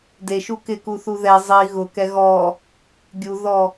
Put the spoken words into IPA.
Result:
d e ʃ u k ɪ k u θ u ð ɛ zˤ i ɣ ʊ k ɛ ɣ ɔ | ɡʲ u ð ɔ

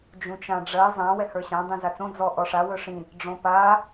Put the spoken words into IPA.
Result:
d͡ʒ ũ t͡ʃ ã ɖ͡ʐ ɜ zˤ ã w ɛ h ə˞ ɕ ã dˤ ĩ z a t͡s õ d͡z ɔ ʔ ɔ ʂ a w ɵ ʂ ĩ | ɖ͡ʐ õ p a

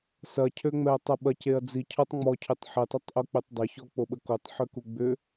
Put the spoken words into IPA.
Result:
s ɐ cʰ ø ŋ͡m ɛ ɐ̯ tˤ ɐ ɓ ɐ c e ɐ̯ d͡z i cʰ ɔ tˤ ŋ͡m ɔ cʰ ʏ tˤ ħ e tˤ e tˤ ʔ u k͡p ø tˤ dˤ ɪ ç ɔ k͡p o ɓ ə k o tˤ ħ ø k u ɡ͡b ʏ

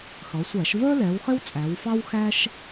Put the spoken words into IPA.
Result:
x ʌ˩˧ sʷ æ˧˩˧ ʃ v ə˞˥ l ɛ˩˧ w χ ɪ˥ w t͡sʼ æ˩˧ w f ɑ˥ w x æ˥ ʃ

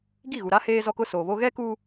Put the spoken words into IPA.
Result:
ɡ i˦˨ ɣ u˨ ɾ a˦ h eː˦ z ɔ˦ k ʊ˦ s oː˨ β o˦ ɣ ɛ˦ k u˦

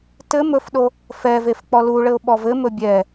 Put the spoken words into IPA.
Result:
t ɘ m ɵ f ɗ o | f ɛ v e f k͡p ɔ l u ɭ ɘ ʊ̯ ɓ ɔ v ɘ m ɵ bʲ ɛ

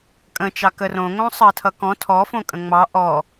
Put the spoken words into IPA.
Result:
kʼ ə̃ t͡ʃ ɑ k ə r õ ŋ õ sˤ ʌ tʰ ʌ k ɔ̃ tʰ ɔ f õ kʼ ə̃ ŋ͡m ɑ ʔ ɔ

